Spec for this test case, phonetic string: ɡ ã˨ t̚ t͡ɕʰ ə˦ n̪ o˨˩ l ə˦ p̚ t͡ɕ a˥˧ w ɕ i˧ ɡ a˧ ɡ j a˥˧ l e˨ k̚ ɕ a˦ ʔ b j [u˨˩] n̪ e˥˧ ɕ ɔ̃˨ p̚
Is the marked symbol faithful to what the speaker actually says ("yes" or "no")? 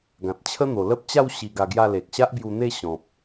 no